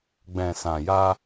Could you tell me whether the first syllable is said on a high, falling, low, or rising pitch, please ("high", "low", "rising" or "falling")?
low